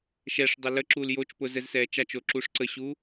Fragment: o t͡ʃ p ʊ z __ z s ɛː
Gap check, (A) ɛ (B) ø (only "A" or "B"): A